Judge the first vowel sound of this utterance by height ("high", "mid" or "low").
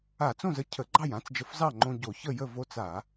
low